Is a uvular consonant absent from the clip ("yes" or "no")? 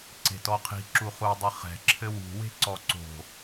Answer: no